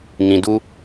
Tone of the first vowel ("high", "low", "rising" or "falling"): low